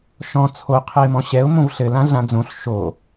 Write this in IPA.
ʃɔ̃ t͡sʰo qʰɘɪ̯mɔ̃ɕɛʊ̯ mõvɬɘ lãɮãd͡zõɬ ʃo

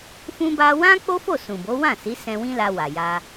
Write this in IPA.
fũ˦ba˦ wã˦ k͡po˦fo˦˨ sũ˨bo˨˦wã˦˨si˨˦ sɛ̃˦ wĩ˦la˧wa˨ ja˧

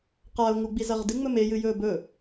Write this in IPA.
qaʊ̯ŋu ɡ͡bizɐʁdɨŋ͡mɵ mejɨjɵː bɵ

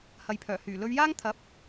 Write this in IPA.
hɐ˨jpʰœː˨˩ hyː˨˩lɵ˧ɥjaː˥ŋ t̪ʰɐ˨˥p̚

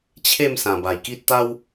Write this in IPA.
t͡ɕʰe˥˧m sã˨˩ba˨˩jki˦t̚ t̪a˦w

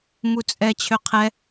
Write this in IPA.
mut͡sʼɛ t͡ɕʰøqʰɛ

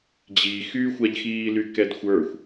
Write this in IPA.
d͡ʑixyːxʷaʎxiː lykɛdxʷə˞xʷ

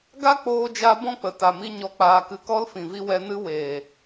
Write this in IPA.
ɡa˦k͡poː˧d͡ʒa˧ bɔ̃˦k͡pə˨ta˨mi˧ ɲɔ˨k͡paː˨kɨ˨kɔ˧l fĩ˨vi˧ wɛ˧nɨ˦ weː˨

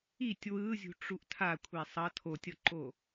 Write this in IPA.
itʲ wɯzʲṳʈ͡ʂuʔ tʰakʷʰɛ sˤʌ tʰotʲʌǃo

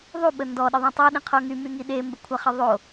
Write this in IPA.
ðˤuɓə ndɔɗəðˤã tˤøɗĩqʰo ŋymyŋi ɗembəkʷʰaχə ðˤo

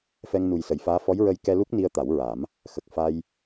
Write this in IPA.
fɛ˧ŋnu˨˩jsə˨˩˨jfaː˧˥ fɔ˧˥jɹə˧j kɛ˧lu˦˥k̚ ni˧ə̯t̪a˨˩˦wɹa˨˩˦m | xə˨˩k̚ fa˧j

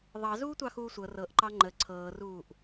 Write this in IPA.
ðˤɑ zuːtʷɑxuːsʷɤ rɤʔǃɑ ŋ͡ǃə ǀʰɤːruːʔ

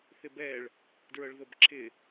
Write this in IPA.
θɪbɛɭ | dɹɤɭðɤbǁʰɪ

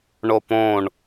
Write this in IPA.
ɳopõɳ

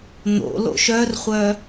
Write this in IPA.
n̪o̰lo̰ ʃœrχʷœ

